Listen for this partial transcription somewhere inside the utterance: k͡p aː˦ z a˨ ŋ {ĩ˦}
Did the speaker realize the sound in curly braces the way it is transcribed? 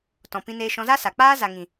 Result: no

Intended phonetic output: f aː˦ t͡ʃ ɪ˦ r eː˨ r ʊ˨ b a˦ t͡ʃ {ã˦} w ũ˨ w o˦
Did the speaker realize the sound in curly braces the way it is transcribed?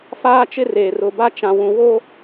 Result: no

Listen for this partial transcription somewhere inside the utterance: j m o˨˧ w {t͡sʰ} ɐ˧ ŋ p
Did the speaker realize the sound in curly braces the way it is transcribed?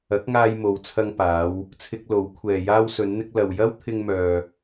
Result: yes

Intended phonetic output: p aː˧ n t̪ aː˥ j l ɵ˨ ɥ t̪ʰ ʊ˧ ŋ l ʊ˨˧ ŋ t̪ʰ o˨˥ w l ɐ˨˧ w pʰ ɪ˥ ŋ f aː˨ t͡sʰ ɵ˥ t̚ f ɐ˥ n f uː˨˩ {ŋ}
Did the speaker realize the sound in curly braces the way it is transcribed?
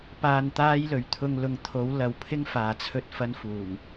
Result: yes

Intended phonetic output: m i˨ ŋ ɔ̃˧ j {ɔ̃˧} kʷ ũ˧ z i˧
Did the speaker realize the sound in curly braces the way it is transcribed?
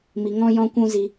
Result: yes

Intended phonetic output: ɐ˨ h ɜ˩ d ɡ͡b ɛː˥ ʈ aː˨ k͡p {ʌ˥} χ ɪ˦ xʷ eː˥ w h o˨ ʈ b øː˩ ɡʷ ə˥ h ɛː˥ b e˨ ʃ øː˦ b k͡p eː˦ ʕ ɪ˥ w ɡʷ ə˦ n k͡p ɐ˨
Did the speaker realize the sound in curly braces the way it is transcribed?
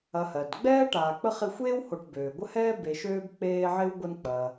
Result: no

